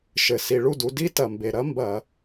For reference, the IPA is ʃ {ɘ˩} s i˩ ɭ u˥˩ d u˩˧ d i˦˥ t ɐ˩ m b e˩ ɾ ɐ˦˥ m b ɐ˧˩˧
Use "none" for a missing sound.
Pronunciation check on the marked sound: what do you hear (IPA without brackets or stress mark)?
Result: ɘ˩